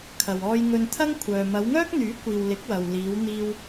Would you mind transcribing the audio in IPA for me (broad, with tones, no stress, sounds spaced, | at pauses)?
kʰ ɐ˨ w ɔː˧ j ŋ ɵ˧ n t̪ʰ ɐ˥ ŋ kʷʰ œː˨ m ɐ˨˧ w ŋ œː˥ k̚ n̪ yː˨˥ kʷ iː˨ w l ɪ˨˥ k̚ w ɐ˨ w l iː˨˧ w n̪ iː˧ w